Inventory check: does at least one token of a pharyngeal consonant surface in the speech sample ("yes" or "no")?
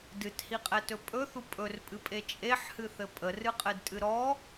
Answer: yes